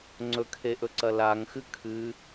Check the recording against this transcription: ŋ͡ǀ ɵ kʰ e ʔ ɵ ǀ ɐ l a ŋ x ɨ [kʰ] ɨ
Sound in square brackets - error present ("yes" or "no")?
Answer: no